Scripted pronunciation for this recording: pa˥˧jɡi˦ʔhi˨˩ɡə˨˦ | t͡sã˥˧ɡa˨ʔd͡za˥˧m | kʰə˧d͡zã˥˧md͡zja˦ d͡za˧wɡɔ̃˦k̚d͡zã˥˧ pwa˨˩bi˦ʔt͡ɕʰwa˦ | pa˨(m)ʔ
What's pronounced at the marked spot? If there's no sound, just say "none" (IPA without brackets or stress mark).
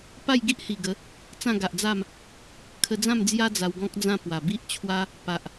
none